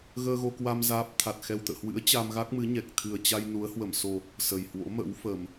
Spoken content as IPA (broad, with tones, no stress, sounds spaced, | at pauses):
ɣ əː˧ ɣ o˧ k w a˧ m z aː˦˥ p̚ t̪ʰ a˨˩ t̚ x ɛ˨˩ w t̪ ə̰ː˧˨ h w ɨ̰˧˥ ə̯ t͡ɕ a˧ m ɣ a˦˥ k̚ m ɨ˨˦ ɲ ɛ˨˩ k̚ t̪ʰ ɨ˨˩ ə̯ t͡ɕ a˧ j n u˨˦ ə̯ h w ə˧˩ m s o˨˩ | s ə˨˩ j h w o̰˧˥ m ə̰˧˥ w f ə˨˩ m